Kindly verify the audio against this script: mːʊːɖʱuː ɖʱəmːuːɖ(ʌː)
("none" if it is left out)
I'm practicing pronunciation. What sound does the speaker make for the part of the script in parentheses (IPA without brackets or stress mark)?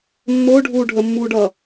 ʌː